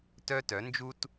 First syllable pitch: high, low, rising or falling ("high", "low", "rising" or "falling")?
high